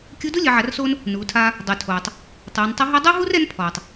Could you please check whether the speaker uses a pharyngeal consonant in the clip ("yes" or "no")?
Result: yes